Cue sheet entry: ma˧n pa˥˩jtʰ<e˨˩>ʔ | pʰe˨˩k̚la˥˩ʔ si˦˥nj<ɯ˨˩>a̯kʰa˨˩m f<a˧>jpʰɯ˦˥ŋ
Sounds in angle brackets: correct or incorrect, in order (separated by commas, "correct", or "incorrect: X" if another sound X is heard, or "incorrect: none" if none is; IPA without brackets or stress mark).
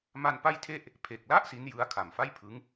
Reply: incorrect: e˥˩, incorrect: ɯ˦˥, incorrect: a˥˩